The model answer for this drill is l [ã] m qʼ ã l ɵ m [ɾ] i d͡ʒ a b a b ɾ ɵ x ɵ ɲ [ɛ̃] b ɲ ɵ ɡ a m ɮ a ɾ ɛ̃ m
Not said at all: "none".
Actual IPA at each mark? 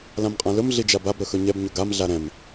ã, ɮ, ɛ

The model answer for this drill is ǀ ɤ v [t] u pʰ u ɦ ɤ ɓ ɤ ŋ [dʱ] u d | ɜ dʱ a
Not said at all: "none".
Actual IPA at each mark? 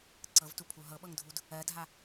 t, dʱ

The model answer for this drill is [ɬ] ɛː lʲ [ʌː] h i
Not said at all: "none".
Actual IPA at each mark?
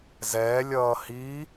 z, ʌː

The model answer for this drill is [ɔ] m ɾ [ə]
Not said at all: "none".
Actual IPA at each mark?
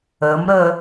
ə, ə

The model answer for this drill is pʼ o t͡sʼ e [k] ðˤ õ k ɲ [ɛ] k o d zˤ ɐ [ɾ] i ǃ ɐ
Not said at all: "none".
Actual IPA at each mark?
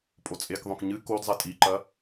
k, ɨ, tʼ

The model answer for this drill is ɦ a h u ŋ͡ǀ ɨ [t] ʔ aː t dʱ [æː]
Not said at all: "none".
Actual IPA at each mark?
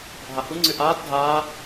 none, aː

